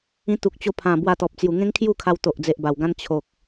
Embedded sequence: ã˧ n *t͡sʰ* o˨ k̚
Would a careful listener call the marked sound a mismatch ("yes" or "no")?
yes